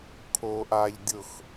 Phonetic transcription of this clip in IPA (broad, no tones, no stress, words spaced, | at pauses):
kʰoːʔaʎ dʲʊx